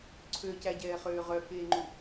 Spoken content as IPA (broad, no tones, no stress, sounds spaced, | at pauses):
ǀʰ ø c æ ɟ ɛː χ øː ʁ œ k eː ŋ͡ǃ u